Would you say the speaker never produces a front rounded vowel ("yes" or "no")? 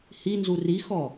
yes